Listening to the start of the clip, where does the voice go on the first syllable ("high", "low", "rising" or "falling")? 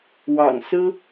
low